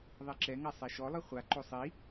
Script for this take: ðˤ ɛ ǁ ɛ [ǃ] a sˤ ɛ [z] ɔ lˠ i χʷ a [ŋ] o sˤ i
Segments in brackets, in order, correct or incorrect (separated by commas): incorrect, incorrect, incorrect